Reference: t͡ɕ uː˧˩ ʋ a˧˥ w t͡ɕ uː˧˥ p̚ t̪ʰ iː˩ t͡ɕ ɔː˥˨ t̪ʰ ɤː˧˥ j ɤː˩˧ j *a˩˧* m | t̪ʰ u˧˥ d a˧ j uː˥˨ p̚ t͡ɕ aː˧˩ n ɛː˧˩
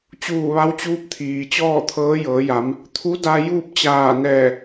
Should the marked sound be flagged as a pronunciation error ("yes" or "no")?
no